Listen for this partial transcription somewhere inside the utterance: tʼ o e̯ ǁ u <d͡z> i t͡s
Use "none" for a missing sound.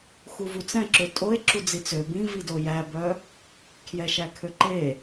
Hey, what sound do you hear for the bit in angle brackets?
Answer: d͡z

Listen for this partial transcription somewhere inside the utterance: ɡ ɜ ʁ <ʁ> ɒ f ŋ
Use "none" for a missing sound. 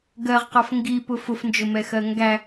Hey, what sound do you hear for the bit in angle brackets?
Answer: q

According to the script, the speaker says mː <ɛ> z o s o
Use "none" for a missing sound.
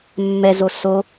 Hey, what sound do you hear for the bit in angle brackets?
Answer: ɛ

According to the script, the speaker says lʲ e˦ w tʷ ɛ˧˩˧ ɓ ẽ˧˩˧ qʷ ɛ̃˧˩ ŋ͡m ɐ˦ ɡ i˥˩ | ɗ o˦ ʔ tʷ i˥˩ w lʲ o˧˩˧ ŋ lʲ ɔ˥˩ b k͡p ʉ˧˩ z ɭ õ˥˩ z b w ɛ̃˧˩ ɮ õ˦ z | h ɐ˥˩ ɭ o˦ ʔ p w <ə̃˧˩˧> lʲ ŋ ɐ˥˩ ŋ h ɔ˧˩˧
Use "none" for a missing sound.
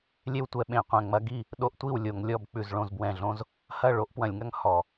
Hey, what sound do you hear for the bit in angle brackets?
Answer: ɐ̃˧˩˧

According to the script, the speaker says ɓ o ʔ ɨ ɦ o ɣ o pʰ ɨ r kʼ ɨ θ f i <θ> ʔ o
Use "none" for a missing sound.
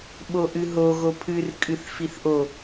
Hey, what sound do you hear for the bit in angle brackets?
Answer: θ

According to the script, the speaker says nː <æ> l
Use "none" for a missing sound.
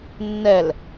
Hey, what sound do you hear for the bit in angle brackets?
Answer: ɛ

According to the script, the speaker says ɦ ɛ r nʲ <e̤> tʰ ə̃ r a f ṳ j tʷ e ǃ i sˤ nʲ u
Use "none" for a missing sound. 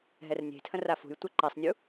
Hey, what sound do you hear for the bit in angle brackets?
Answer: e̤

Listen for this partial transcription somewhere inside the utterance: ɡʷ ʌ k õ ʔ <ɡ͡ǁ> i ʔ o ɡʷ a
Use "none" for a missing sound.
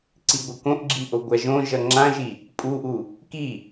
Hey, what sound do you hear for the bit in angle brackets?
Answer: ɡ͡ǁ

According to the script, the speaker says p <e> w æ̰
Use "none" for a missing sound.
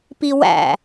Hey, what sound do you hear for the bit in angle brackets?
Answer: i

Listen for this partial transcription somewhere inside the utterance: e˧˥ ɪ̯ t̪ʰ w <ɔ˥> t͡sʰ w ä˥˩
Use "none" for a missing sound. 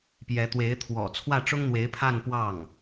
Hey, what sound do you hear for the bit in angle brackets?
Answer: ɔ̰˨˩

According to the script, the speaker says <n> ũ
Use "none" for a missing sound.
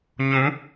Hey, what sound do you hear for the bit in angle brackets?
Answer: ɲ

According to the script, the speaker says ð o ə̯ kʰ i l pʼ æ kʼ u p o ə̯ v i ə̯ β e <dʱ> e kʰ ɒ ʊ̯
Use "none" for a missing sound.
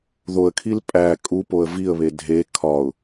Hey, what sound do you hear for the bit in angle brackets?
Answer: dʱ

